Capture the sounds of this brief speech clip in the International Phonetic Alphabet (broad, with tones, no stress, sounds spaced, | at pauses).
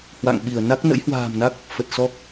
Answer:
h w a̰˧˨ ŋ ɓ i˧˩ ə̯ n a˦˥ k̚ n ə̰˧˥ j h w a̤ː˨˩ m n a˦˥ k̚ | f ə˨˩ t̚ s ɔ˦˥ k̚